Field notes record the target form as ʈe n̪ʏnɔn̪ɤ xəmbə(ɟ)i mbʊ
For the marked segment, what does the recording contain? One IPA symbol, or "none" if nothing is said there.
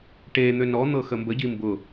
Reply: ɟ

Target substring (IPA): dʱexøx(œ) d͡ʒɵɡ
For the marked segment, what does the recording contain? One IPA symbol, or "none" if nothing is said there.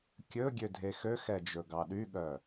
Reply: ɛ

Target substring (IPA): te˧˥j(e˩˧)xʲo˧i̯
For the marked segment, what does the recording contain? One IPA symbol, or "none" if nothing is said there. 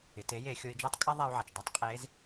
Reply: e˩˧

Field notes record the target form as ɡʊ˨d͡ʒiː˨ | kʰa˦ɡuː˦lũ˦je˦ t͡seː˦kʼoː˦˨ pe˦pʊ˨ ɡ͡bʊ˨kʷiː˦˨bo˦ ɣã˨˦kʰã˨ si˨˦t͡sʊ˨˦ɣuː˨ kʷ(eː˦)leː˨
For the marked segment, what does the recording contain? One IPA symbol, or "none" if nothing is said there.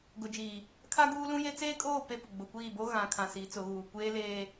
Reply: eː˦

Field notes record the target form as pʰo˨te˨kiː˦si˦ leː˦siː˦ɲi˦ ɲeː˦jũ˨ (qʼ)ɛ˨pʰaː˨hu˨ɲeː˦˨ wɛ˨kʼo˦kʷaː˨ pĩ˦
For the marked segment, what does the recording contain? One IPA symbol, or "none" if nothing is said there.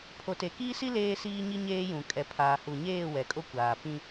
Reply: kʼ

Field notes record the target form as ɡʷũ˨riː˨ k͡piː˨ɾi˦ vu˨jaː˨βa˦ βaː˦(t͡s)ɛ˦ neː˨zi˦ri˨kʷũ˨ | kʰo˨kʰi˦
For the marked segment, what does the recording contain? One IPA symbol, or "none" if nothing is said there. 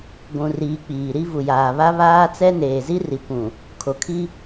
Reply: t͡s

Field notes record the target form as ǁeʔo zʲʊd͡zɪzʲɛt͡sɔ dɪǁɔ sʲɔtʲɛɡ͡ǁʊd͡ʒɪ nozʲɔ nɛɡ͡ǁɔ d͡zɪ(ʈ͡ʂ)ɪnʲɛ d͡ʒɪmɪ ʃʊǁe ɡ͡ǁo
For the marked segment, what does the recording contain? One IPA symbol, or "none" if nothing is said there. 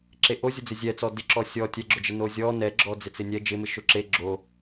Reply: t͡s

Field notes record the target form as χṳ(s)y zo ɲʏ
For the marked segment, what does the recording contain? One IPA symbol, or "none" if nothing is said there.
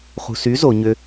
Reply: s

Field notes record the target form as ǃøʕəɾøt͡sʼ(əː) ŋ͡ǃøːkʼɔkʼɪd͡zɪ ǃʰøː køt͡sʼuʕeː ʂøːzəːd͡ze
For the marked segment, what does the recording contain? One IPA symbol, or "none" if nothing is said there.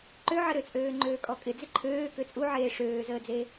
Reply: øː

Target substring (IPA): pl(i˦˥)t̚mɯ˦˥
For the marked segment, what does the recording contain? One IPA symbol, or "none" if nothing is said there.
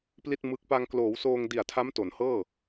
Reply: i˥˩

